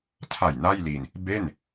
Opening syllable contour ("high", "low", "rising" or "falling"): low